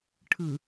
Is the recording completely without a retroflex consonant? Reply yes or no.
no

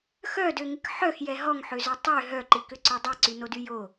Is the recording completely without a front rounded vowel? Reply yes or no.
no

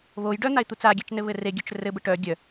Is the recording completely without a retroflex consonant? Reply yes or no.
no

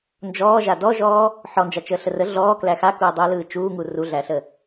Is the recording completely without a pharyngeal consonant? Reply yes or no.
no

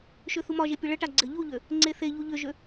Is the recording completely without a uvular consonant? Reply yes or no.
yes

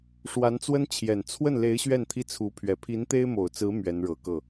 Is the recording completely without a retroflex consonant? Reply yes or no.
no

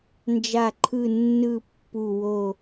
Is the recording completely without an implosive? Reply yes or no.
yes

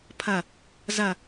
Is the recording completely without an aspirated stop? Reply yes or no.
no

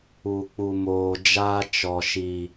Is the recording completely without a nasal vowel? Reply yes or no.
yes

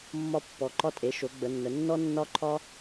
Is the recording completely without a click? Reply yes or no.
no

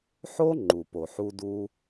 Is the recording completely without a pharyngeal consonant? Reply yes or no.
no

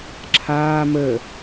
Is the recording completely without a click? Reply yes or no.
no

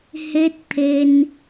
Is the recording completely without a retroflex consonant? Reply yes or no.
yes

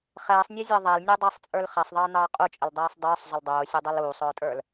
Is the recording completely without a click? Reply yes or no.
yes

